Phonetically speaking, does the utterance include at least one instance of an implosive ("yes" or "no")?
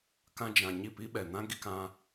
yes